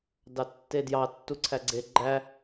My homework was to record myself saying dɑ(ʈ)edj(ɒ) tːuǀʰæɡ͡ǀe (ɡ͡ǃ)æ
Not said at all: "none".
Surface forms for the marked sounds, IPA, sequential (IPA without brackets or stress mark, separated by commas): tː, ɑ, ɡ͡ǃ